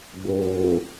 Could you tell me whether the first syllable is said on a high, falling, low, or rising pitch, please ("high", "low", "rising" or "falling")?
low